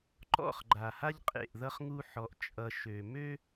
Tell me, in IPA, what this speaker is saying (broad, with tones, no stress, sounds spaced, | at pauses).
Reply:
ǃ ɔ̰˦˨ χ ɡ͡ǃ a˨ h a˦ ʎ qʼ ḛ˦˨ ʔ ð ʌ˦ χ ŋ u˦ ħ ɔ˦ ʔ t͡ʃʼ ʌ˦ ʃ ø˨ m ø˦